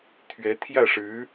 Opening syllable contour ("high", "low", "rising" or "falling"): rising